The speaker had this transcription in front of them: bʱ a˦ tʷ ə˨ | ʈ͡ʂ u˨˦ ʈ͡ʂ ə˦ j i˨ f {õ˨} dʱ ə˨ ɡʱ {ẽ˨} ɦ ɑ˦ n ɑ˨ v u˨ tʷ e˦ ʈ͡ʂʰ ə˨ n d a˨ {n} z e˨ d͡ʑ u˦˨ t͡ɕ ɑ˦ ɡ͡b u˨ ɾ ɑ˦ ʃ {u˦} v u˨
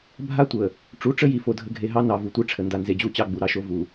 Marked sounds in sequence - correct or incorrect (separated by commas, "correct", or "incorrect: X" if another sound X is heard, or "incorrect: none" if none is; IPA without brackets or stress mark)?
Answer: incorrect: o˨, incorrect: e˨, correct, incorrect: o˦